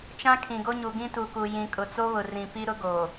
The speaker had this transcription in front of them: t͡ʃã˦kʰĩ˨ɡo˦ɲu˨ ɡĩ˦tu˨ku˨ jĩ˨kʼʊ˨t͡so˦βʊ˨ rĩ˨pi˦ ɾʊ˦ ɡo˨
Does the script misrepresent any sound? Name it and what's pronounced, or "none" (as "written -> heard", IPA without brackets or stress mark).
none